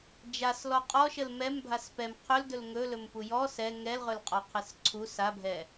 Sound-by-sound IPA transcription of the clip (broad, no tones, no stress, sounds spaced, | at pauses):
d͡ʒ a s l ɔ qʼ ɔ ʃ ə l m ɛ m bʱ a s p ɛ m qʰ ɵ l d ɵ l ŋ ɵ l ɵ m p u j ɔ s ɛ ŋ ɛ l ʁ ɵ l qʼ ɔ qʰ ɛ s ǀʰ u s a bʱ ɛ